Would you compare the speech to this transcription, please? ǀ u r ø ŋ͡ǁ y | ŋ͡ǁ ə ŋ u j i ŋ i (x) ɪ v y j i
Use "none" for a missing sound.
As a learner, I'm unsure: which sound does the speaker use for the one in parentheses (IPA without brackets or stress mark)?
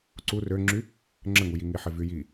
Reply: ħ